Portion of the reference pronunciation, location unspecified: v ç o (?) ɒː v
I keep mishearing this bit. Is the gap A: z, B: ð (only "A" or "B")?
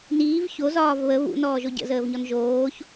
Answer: A